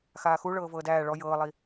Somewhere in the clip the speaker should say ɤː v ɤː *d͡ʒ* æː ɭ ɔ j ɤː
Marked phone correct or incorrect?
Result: incorrect